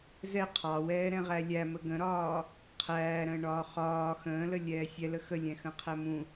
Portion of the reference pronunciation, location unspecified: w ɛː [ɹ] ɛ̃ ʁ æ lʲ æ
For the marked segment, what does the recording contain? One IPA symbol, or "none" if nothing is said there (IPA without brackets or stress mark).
ɾ